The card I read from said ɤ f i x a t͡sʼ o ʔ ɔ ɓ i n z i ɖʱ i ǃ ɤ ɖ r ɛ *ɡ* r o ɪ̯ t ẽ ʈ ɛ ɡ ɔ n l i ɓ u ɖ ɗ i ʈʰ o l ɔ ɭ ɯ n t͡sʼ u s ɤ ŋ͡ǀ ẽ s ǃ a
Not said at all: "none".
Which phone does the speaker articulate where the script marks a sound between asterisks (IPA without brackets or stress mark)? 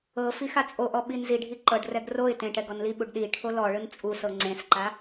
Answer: ɡ